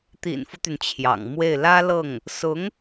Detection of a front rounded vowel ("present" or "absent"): present